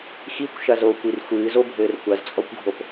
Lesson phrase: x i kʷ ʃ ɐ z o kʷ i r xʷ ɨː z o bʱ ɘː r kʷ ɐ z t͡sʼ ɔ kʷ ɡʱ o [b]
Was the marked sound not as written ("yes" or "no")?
yes